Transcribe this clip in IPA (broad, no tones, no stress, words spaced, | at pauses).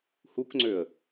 hukŋ͡ǀøə̯